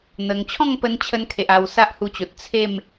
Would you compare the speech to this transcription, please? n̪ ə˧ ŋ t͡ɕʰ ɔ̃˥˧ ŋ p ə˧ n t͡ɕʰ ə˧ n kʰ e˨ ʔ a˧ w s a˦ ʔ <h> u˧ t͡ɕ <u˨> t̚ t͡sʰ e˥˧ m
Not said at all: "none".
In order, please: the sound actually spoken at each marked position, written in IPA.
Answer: h, o˨

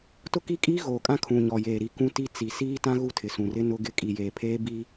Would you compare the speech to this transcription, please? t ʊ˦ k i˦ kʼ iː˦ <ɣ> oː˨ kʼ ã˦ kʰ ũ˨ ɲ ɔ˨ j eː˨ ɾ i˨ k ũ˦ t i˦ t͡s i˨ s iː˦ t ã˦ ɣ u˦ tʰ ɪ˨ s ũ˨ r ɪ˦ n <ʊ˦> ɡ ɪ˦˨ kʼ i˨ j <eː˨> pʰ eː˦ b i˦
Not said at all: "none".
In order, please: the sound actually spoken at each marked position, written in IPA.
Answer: ɣ, ʊ˦, eː˨

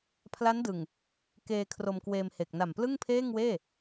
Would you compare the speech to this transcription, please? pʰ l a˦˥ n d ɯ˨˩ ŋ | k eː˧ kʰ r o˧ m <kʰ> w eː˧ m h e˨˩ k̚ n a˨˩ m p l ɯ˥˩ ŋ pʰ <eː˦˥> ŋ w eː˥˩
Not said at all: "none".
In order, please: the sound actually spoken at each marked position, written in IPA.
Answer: k, eː˥˩

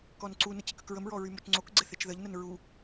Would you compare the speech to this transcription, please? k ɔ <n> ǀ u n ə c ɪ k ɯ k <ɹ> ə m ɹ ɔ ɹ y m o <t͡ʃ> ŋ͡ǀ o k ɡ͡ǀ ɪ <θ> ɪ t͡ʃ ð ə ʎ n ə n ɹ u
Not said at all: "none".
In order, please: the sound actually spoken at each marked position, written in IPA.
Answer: n, ɹ, t͡ʃ, θ

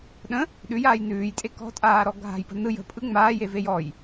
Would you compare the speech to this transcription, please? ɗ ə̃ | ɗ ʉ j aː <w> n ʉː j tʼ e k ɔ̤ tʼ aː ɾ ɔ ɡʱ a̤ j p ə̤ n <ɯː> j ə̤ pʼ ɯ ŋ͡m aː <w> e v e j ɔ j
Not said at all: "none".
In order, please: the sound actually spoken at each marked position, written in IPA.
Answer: j, ɯ, j

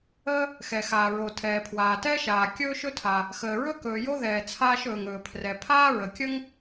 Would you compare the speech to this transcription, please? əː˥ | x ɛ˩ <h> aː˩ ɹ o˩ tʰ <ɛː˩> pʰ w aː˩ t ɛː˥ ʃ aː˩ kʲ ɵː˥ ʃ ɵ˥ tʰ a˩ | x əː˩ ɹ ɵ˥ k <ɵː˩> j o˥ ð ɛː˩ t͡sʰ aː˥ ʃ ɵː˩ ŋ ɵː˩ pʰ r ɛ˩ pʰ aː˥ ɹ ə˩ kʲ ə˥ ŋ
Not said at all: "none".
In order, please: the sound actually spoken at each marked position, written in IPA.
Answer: x, ɛː˩, ɵː˩

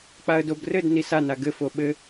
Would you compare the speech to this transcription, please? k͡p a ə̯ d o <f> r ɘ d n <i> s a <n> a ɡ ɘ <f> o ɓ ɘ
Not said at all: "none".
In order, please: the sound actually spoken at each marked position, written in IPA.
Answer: b, i, n, f

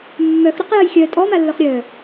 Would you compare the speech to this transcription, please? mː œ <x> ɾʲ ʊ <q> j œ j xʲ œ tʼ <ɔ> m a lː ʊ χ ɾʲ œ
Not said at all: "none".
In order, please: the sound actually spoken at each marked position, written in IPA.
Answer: x, q, ɔ

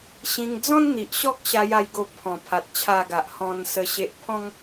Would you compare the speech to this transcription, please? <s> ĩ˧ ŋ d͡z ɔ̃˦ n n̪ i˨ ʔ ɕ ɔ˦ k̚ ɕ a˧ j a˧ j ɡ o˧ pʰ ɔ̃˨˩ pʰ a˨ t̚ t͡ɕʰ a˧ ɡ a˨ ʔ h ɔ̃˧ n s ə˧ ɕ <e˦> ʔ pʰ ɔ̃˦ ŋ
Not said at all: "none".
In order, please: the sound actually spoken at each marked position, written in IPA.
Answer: ɕ, e˦

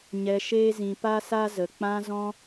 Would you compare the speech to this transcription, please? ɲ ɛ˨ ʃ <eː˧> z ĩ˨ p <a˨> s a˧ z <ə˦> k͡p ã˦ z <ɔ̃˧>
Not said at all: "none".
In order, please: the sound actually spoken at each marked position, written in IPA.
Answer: eː˧, a˧, ə˨, ɔ̃˦

